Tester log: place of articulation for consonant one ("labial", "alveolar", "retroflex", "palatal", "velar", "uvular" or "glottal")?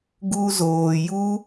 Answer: velar